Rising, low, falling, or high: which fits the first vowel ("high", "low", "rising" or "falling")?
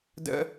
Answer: high